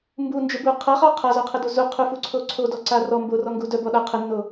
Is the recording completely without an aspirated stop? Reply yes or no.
no